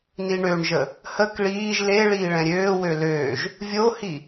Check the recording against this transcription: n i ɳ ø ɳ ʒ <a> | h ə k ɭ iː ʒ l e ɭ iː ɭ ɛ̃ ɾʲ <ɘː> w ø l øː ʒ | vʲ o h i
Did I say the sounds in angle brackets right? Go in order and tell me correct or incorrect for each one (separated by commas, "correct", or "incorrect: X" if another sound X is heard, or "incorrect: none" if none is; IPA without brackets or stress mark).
incorrect: ə, incorrect: øː